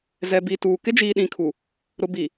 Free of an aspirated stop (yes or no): no